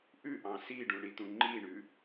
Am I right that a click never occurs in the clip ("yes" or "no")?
no